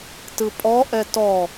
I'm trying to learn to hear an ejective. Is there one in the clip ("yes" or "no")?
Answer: yes